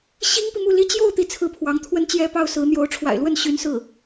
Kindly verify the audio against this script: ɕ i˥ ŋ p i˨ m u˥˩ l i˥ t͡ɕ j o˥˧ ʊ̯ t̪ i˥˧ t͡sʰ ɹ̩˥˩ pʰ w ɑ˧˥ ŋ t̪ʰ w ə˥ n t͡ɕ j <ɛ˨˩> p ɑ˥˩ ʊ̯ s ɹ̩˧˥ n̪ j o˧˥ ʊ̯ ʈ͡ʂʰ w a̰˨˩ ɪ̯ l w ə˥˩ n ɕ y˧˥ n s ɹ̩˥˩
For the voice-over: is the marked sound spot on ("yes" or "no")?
no